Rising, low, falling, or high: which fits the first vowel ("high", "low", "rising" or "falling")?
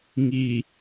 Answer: low